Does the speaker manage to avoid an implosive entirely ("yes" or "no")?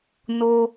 yes